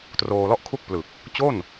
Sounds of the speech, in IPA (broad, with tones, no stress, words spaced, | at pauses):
troː˧lɔ˥˩ʔkʰu˥˩k̚ plɯ˨˩k̚ | t͡ɕo˥˩n